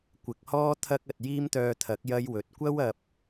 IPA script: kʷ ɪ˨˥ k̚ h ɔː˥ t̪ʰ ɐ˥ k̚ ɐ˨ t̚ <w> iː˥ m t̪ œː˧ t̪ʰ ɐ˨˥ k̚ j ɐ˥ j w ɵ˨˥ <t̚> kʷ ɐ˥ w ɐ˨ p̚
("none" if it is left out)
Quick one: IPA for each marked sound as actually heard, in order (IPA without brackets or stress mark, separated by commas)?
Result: j, t̚